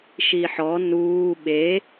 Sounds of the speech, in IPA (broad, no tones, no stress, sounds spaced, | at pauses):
ʃ i ħ ɔ n uː ɓ e